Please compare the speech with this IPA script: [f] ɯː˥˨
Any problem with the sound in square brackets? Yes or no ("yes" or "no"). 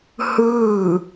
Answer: yes